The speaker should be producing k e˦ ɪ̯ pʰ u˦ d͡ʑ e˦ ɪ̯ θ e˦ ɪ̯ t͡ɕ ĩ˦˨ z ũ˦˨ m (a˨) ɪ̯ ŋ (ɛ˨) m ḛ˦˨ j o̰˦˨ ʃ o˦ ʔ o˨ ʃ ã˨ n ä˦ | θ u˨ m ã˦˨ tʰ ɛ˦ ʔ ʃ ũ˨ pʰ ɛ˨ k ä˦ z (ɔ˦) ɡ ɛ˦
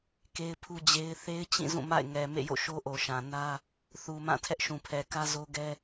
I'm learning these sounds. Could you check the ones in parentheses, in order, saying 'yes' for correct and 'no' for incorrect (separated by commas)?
no, yes, no